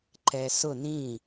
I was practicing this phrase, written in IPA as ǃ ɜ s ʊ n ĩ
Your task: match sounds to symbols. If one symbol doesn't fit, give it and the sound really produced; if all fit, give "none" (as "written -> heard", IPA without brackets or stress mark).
ɜ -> ɛ